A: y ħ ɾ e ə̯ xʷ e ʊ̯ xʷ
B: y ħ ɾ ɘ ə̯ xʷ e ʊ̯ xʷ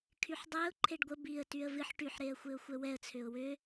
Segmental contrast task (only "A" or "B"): A